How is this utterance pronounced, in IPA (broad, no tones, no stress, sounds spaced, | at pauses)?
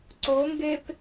ǀ o ŋ ɡ e p